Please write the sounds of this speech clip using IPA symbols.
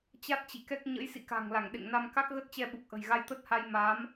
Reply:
t͡ɕ a˦˥ t̚ t͡ɕ ḭ˧˨ k ɛ˦˥ k̚ ɲ ə̰˧˥ j s ḭ˧˨ k a̤˨˩ ŋ l a˧˩ ŋ ɗ ḛ˧˨ ŋ n a˧ m k a˦˥ k̚ ɣ ə˦˥ t̚ t͡ɕ ɛ˧ ɓ u˨˩ k̚ ʔ ə̤˨˩ j ɣ a˧ j t̪ ə˦˥ t̚ h a˧ j m aː˨˦ m

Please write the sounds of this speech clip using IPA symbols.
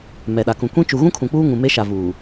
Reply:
m ɛ˨ ɗ a˨ k ũ˨ kʷ ĩ˦ t͡ʃ u˨ ɣ ũ˦ kʰ ũ˨ k͡p uː˦ ŋ ũ˨ m e˦ ʃ a˨ v uː˨

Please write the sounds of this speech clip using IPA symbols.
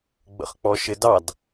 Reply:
ɡ͡b ə̰ χ k͡p ɔ ʃ ɪ d ɑ d

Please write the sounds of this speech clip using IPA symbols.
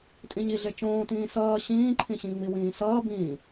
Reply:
tʼ ĩ ɲ i ɮ e t͡ʃ õː t ĩː s ʌː ɕ ĩː ǃʰ ĩ ɕ ĩ ŋ͡m i w ĩː s ʌː b ĩː

